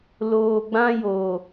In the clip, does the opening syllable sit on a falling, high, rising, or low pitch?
low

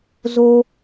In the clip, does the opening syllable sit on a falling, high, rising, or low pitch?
high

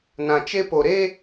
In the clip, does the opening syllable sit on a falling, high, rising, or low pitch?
low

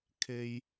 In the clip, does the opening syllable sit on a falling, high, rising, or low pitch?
low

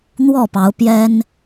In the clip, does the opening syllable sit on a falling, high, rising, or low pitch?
falling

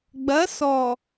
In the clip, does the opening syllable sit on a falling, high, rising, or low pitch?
rising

